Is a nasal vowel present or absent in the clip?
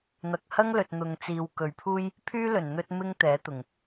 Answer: absent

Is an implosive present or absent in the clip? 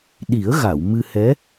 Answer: present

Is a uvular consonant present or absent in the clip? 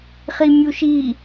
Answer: present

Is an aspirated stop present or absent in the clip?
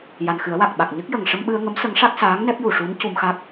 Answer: absent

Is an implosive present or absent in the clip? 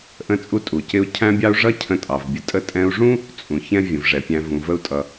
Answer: absent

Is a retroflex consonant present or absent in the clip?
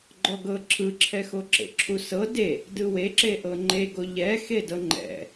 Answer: absent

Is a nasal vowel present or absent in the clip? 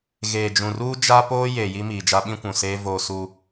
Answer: present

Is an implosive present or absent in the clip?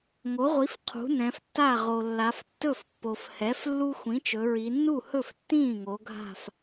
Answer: absent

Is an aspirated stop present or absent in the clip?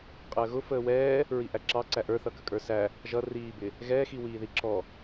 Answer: absent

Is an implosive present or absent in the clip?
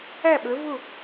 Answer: present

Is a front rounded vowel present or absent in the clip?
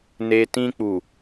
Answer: absent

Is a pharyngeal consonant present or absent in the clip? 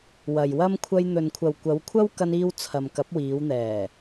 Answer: absent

